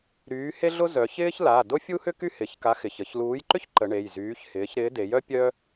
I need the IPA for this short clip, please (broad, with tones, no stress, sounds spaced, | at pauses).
ɾ yː˨˥ h e˥ ɮ ʊ˥ z œ˩˧ ç ɪː˥ ç l a˩˧˩ d ʊ˥ fʲ u˥ h ʏ˥ k y˥ h ɪ˩˧˩ ç k a˨˥ x ɪ˩˧˩ ç ə˩˧ ç l uː˨˥ j ǃ ʏ˥ ç ǃ ə˩˧ ɳ e˩˧˩ j z yː˨˥ ç h ɪː˨˥ ç ɾ ɪː˨˥ d e˩˧ j œ˥ pʲ œ˥